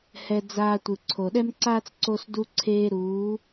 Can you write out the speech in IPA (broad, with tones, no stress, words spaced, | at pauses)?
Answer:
hɛ˧d͡zaː˧ tʷɯ˨ǀʰo˨ɗɛ˦mǀaː˦t͡s ǀo˧sdu˧ǀʰeː˧ɾuː˨˦